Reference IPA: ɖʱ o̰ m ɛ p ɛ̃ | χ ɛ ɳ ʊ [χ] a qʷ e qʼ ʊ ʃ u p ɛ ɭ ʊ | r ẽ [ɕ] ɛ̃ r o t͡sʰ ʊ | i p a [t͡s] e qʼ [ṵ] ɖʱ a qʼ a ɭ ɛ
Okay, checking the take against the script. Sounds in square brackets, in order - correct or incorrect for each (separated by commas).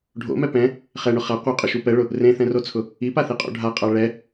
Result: correct, incorrect, incorrect, incorrect